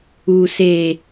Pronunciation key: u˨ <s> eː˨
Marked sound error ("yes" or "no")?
no